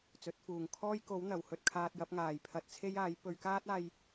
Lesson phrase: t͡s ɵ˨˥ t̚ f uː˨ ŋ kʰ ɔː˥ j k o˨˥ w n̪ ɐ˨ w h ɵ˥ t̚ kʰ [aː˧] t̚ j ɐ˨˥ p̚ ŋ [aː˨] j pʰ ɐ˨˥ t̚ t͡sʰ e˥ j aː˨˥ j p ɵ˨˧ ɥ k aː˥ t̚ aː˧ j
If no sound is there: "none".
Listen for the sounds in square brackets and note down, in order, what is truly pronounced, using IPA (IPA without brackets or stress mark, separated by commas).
aː˧, aː˨